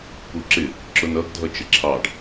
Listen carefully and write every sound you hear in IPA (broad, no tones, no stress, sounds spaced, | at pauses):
p u ǁ ɪ | ǁ ʊ n ʌ ɡ dʱ ʌ t͡ʃ ɪ ǁʰ ɑ ɖ